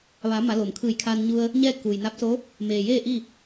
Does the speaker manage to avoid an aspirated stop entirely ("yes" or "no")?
no